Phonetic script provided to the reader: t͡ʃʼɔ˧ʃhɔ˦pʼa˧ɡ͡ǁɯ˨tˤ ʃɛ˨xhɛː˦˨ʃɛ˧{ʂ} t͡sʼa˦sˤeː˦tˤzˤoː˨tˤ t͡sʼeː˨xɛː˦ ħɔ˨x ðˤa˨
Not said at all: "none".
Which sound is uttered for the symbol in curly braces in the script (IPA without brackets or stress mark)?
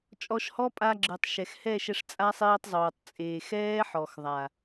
ʂ